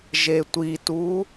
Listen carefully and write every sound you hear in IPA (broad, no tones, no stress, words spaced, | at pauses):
ʒetʷitu